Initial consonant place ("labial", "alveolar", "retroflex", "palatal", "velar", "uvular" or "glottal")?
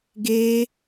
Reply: velar